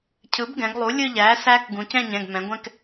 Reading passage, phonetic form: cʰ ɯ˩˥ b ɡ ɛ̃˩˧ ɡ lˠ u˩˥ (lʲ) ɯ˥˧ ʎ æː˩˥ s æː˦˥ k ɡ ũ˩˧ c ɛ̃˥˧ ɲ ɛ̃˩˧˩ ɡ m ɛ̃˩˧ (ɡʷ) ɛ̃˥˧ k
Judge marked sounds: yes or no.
yes, yes

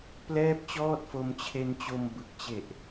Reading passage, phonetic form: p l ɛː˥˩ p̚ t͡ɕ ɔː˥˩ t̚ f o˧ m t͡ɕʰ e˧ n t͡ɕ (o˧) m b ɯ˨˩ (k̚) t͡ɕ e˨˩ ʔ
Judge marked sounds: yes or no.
yes, yes

